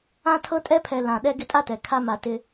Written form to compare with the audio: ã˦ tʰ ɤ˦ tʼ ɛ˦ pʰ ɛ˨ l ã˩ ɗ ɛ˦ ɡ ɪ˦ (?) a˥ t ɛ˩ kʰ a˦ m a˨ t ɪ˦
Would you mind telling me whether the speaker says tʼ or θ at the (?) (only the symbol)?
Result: tʼ